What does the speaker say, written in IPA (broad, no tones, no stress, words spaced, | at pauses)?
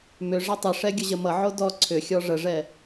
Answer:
mʏ ʐʌtˤəʂɛ ɡʲəʑəmʌʕo dɔ ǀʰʏxʲɔ ʐəʐɛ